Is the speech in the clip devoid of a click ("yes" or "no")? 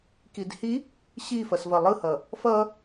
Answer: yes